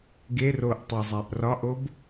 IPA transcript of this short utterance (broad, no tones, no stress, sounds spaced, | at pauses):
ɡ e r o ʔ tˤ e zˤ æ ʔ r ɒ ʔ o b